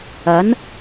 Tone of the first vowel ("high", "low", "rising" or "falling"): rising